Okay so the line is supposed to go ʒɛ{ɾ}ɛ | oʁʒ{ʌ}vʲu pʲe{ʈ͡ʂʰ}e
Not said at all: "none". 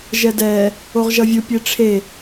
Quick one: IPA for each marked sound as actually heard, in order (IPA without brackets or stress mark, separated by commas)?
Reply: d, ʌ, ʈ͡ʂʰ